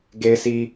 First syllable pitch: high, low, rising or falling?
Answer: high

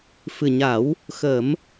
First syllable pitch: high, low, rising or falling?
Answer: low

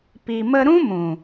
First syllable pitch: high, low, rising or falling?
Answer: low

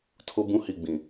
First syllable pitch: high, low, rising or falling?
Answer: high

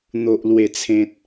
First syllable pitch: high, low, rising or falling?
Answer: low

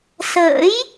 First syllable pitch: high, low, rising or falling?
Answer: rising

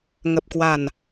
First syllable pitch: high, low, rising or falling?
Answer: low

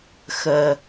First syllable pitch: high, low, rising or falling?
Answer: low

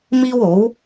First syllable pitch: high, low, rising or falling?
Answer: high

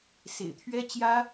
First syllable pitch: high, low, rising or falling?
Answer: low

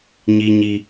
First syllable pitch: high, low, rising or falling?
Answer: high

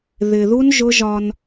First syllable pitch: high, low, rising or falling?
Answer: low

